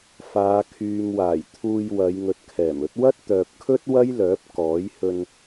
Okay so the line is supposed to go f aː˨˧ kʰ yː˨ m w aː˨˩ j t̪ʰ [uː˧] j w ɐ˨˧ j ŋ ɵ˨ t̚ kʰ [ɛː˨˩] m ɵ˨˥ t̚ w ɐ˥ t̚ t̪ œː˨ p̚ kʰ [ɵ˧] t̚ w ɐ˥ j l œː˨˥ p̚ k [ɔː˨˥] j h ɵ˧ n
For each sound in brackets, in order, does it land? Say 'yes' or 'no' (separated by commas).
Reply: yes, yes, no, yes